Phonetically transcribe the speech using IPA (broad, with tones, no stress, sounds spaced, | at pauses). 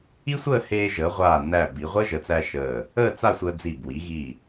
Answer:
i˥ sʷ əː˥˧ h eː˧ ʒ əː˩˧ ʁʷ aː˧˩ n æ˧˩ b i˩˧ ʁʷ əː˥ ʒ ə˩˧ t͡s æ˧ ʃ əː˧˩ | əː˥˧ t͡s a˥˧ sʷ əː˧ d͡z i˧˩ b w i˩˧ ɣ i˧˩